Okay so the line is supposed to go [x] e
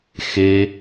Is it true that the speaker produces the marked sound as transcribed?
yes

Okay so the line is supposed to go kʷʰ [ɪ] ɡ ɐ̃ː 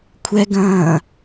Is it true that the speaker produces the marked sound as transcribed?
no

